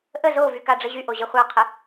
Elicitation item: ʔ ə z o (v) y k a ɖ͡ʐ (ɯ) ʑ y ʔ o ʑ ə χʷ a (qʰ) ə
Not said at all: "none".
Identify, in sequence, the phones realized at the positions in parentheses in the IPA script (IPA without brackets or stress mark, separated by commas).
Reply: v, ə, qʰ